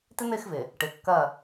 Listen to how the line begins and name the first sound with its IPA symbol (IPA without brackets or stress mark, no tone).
t